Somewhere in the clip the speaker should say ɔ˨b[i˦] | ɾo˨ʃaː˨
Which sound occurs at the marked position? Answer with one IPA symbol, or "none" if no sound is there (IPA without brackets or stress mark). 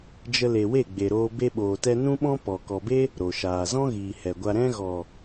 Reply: e˦